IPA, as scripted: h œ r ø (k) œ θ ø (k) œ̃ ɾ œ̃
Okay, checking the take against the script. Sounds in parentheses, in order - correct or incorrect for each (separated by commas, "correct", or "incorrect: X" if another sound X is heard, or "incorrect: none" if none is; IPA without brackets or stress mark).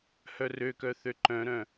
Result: correct, incorrect: ǃ